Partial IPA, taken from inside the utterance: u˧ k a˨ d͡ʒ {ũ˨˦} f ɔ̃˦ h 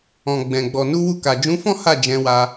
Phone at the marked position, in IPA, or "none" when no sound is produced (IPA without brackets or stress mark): ũ˨˦